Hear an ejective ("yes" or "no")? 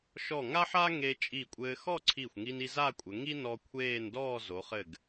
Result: yes